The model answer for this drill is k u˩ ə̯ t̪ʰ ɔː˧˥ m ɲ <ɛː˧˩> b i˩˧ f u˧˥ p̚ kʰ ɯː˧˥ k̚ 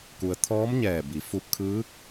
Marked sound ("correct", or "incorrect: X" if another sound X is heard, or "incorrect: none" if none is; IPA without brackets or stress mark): correct